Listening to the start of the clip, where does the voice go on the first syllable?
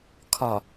low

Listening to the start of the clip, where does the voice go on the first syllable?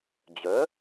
rising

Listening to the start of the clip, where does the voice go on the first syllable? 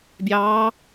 rising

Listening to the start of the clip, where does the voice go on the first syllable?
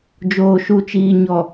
low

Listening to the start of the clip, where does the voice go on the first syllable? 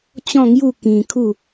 falling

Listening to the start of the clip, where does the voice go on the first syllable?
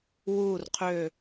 low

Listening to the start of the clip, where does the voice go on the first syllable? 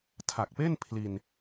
low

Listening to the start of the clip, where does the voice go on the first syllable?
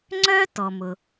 high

